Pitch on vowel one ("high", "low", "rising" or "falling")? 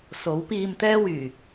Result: rising